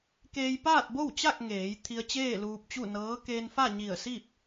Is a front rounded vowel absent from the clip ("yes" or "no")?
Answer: yes